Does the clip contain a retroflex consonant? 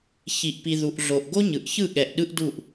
no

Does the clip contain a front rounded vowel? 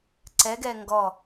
no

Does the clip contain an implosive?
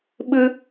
yes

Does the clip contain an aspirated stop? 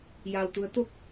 no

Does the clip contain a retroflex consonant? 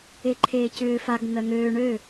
yes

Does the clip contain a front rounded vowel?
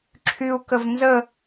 yes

